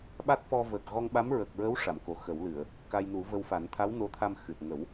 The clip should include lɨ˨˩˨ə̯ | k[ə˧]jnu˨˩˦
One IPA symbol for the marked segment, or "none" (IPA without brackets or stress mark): a˧